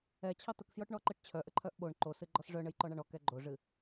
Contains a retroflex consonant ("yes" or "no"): yes